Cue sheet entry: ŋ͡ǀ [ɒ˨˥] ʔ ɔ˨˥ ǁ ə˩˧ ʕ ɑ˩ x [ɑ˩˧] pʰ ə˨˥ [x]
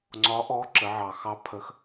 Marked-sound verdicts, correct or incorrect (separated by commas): correct, incorrect, correct